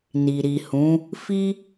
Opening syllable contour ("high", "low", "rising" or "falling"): low